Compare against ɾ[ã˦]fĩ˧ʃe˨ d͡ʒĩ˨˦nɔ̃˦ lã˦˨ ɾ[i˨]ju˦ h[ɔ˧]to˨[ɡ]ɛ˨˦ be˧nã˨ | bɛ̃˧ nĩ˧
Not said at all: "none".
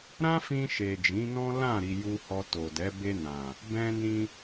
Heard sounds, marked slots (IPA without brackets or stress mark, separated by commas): ã˦, i˧, ɔ˧, d